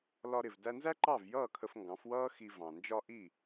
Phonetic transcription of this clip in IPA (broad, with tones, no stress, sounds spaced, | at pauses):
l ɒ˧ ɾ ɪ˩ v d æ˧ n z æ˥ ǃ ɑ˥˩ v j ʌː˥˩ kʰ ə˧ f ŋ ɡ ɑ̃˩˥ f w ʌː˥ x i˧ v ɑ̃˩ n d͡ʒ ɒ˥ ʔ i˥˩